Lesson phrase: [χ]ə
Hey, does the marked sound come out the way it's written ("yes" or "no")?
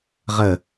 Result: no